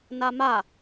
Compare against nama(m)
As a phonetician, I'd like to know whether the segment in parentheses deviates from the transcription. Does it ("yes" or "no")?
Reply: yes